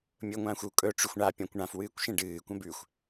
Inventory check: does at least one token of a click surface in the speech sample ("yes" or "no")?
no